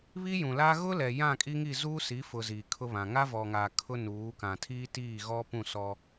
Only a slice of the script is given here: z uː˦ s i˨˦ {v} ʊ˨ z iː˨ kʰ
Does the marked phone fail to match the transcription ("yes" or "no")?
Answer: yes